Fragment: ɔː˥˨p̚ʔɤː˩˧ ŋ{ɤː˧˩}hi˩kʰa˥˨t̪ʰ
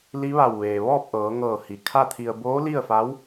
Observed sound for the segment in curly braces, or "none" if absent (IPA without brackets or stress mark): ɤː˧˩